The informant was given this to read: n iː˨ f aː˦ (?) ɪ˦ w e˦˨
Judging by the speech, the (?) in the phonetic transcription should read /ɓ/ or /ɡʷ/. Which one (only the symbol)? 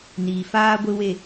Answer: ɡʷ